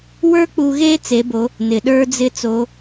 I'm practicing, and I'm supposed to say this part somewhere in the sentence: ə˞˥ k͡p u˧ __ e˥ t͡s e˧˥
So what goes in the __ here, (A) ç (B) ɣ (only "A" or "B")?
B